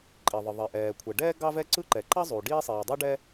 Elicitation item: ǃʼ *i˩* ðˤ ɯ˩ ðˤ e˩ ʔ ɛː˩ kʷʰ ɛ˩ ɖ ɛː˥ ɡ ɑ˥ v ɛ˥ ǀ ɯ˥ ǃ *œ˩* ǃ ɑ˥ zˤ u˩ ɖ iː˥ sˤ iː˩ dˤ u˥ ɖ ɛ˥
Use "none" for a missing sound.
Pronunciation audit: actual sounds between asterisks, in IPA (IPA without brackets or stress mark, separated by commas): i˩, ɛ˩